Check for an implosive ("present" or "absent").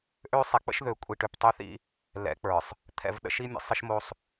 present